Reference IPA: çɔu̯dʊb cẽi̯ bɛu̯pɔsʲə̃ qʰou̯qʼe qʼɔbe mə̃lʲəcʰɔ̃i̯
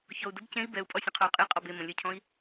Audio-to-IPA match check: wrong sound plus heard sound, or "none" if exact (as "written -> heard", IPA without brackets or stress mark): p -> pʼ